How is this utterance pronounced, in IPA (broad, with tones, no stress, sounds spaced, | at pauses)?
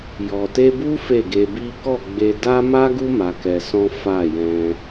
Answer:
j ɔ˨ t e˧ b u˦ f e˦˨ ɡ e˧ b i˦ k ɔ˦˨ ɡ͡b e˧ d a˦ m a˦ ɡ u˦ m a˧ k ɛ˧ s ɔ̃˦ f a˦˨ j ɛ̃˧